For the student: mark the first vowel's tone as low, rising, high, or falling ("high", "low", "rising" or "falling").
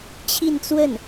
falling